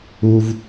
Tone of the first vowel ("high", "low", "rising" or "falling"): low